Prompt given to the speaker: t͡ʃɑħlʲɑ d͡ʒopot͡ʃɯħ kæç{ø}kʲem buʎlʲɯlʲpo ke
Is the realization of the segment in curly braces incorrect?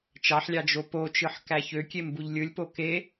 no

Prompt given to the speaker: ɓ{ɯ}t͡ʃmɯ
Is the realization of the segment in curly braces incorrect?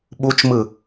yes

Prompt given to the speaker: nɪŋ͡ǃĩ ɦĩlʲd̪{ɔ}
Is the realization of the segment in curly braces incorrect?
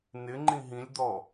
no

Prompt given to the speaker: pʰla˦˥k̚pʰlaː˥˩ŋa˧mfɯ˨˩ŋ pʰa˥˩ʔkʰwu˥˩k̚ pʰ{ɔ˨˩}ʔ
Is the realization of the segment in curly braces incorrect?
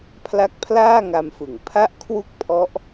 yes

